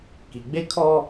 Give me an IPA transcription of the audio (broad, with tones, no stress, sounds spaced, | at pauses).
k i˨ ɡ͡b e˦ kʰ ɔ˦